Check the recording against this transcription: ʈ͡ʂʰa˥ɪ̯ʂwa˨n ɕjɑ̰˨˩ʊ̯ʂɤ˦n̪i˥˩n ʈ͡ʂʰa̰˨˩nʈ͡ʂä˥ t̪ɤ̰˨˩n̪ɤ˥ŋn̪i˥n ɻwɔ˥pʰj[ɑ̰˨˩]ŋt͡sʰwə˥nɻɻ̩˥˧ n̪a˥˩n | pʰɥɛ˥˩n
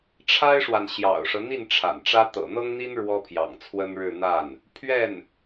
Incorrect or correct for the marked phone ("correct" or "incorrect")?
correct